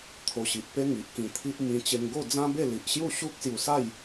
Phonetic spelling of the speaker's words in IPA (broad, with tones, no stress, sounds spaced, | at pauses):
t̪ʰ o˧ ɕ i˨ ʔ p e˦ ŋ i˨ ʔ k ĩ˧ t̪ʰ i˦ ʔ m ĩ˧ t͡ɕ e˧ ŋ ɡ o˥˧ d͡z ã˦ b e˥˧ l i˨ ʔ ɕ j u˥˧ ɕ u˦ k̚ s j u˧ s a˥˧ j